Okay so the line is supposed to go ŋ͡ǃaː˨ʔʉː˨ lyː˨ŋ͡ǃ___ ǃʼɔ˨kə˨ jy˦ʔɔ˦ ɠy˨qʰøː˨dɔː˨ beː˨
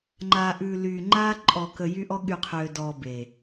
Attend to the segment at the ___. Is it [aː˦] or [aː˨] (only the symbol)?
aː˦